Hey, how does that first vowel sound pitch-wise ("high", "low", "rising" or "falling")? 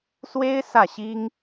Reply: high